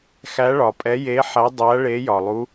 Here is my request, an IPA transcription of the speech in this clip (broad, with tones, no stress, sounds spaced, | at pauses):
x æ˨˦ ɭ ɒ˩ pʼ ɛ˨˦ j e˨˦ ħ æ˨˦ dˤ æ˨˦ ɭ e˨˦ j ɒ˩ lˠ u˨˦